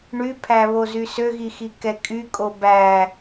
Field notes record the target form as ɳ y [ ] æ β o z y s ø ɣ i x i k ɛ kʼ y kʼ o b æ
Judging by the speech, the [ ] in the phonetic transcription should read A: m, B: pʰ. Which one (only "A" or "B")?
B